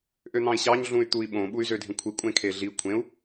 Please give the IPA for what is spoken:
ʔøn̪ɑ̃i̯ɕɑɲ ɮũy̯t̪ui̯ɓõ ɓuy̯zødʱĩkʷʰi kʷʼẽkʰeɮi kʷʰẽu̯

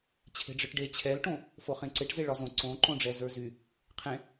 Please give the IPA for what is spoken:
t͡ɕʰe̤ɖ͡ʐɯʈɖe t͡ɕʰɛlʈõ | foχẽǀeʈ zeɭɒzõ ǀõ ǃõɖ͡ʐɛzə˞zy | qʰẽ

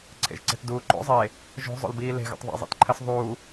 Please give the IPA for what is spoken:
ǀʰḛʒǀe̤tduːǃo̰ zˤe | ʒo̤ zˤo̰lbiːle̤ ɣo̰tˤðˤḛ zˤḭtǃʰəs ðˤuː

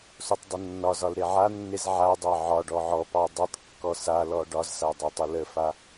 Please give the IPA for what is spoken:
sotˤdˤənːɒzɒl ɾeʕanːez ʕadˤɑ ʕɒɖɔ ʕɔpɑ dˤɨtˤkːɔ salɔ ɖɒzsa dˤetˤələfa

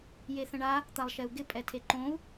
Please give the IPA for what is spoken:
jeθə̃ɳa | t̪alˠʃɛu̯ɡɪ pʼɛtʰeǃõu̯

